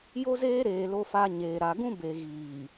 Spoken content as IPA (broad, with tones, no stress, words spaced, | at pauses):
jo˦zeː˦ɾeː˨ lo˨fa˨ ɲeː˨ ɾa˨ɡũ˦ be˨ɣiː˨